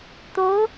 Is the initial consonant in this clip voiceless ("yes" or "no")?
yes